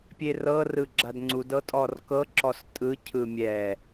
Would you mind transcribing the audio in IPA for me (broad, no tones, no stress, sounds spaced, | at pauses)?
pʲ e r ɤ r ɯ ɡ͡ǁ a d ŋ͡ǀ u d ɤ tʼ ɔ r k ɤ ǁ ɔ s tʼ ɯ cʰ ɯ mʲ ɛ